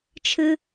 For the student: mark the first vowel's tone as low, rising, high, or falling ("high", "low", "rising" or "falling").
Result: high